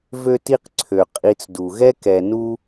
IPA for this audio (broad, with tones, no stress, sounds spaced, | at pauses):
v ø˦ t i˦ q ǀʰ ø˩ qʼ i˨ t͡s d u˩ ɣ ɛ˥ k ɛ˨ n u˦